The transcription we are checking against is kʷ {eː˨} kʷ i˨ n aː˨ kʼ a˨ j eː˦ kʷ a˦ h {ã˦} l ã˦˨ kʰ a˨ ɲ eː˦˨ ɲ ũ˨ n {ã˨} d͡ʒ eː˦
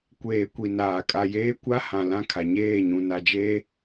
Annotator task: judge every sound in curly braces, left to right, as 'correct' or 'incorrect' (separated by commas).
correct, incorrect, incorrect